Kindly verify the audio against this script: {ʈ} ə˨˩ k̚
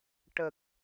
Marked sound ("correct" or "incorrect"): correct